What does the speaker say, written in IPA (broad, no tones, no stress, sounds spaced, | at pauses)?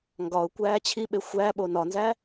ŋ ɡ ɒ ʊ̯ kʷ æː t͡ɕʰ i ɓ e xʷ æ ɓ o n ɒ n z æ